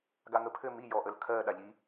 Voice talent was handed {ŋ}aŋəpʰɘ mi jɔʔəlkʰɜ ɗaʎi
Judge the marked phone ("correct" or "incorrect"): incorrect